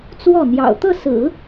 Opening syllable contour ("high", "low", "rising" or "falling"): falling